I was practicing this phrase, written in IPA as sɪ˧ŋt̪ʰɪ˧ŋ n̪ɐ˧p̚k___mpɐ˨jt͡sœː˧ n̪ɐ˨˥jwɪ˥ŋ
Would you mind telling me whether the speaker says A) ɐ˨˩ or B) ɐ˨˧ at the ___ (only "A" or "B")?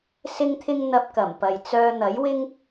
A